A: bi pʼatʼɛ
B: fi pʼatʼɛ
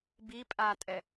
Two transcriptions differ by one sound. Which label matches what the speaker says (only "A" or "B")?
A